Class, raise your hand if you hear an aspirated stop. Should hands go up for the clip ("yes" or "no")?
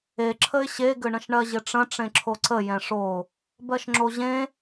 yes